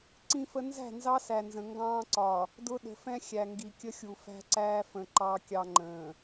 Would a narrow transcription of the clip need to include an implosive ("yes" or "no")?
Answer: yes